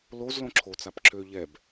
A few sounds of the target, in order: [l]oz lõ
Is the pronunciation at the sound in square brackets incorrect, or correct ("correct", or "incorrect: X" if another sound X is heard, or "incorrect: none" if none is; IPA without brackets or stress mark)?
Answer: correct